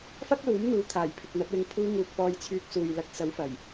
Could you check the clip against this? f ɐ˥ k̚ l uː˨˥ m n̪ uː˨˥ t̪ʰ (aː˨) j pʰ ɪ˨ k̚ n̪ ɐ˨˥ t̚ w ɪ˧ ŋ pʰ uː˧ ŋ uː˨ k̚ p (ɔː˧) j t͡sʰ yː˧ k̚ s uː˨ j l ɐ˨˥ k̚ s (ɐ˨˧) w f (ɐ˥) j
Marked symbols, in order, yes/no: no, yes, no, no

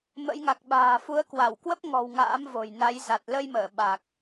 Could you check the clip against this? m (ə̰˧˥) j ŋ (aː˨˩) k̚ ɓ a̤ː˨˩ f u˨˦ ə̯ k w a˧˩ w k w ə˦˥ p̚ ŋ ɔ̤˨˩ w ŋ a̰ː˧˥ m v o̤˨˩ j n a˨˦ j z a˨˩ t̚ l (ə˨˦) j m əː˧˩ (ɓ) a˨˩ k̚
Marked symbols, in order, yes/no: yes, no, no, yes

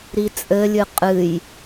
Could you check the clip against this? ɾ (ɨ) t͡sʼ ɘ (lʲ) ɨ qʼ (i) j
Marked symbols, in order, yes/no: no, yes, no

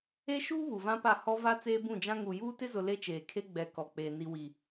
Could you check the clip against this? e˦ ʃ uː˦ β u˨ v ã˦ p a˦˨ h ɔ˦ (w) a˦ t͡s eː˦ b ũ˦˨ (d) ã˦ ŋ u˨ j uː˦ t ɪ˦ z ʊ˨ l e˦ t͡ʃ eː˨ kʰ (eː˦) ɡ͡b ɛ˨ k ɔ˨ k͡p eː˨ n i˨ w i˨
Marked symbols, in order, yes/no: no, no, no

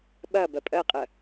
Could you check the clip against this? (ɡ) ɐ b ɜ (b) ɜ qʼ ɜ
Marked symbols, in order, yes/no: no, no

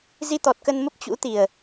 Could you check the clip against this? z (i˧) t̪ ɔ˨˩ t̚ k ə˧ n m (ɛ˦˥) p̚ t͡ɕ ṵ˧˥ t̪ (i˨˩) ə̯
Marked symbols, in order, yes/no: yes, no, yes

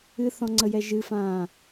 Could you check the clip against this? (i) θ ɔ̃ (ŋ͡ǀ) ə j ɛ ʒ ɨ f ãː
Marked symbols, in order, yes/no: no, yes

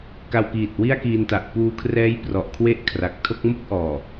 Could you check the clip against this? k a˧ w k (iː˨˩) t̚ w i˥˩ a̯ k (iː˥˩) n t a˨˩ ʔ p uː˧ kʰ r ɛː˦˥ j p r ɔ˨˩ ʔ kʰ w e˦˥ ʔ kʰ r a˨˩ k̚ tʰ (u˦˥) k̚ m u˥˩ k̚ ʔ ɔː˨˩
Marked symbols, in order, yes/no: yes, no, no

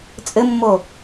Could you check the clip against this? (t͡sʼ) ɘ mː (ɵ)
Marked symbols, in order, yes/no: yes, no

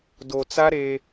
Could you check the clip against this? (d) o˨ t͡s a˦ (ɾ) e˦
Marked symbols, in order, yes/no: yes, yes

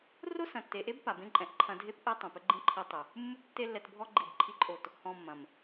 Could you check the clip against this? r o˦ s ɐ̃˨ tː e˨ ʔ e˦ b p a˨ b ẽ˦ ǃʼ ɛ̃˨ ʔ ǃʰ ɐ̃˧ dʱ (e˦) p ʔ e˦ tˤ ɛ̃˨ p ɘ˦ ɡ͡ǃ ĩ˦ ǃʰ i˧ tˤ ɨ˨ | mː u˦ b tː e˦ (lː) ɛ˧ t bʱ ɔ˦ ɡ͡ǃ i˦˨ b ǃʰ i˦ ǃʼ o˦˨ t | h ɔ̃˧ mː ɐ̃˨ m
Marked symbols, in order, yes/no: yes, yes

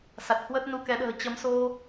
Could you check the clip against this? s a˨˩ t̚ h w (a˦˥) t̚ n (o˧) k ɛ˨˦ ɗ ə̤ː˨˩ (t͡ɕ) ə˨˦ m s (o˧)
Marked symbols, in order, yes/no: no, no, yes, yes

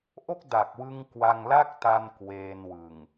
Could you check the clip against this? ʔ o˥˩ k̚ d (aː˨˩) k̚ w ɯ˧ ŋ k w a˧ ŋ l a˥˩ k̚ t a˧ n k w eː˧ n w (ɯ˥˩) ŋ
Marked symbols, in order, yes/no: no, no

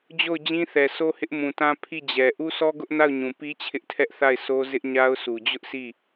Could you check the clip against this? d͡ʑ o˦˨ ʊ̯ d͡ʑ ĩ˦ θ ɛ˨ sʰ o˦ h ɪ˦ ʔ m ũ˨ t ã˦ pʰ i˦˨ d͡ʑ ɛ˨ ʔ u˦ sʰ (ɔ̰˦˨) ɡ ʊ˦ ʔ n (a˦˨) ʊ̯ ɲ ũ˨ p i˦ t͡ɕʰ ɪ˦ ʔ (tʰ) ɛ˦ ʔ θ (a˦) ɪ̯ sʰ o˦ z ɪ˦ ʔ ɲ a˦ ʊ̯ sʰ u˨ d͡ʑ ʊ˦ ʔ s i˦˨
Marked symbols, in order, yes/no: no, yes, yes, no

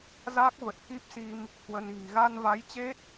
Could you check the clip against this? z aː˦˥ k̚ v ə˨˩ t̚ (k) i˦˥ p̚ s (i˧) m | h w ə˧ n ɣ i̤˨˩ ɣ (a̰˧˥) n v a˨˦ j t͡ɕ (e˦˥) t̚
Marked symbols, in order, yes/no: yes, yes, no, yes

